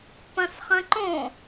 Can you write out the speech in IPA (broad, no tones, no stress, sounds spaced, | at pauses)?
p ɐ̃ s χ ɐ̃ ǃ õ